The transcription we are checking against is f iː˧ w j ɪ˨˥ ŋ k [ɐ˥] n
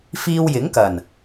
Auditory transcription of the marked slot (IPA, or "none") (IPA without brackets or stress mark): ɐ˨˩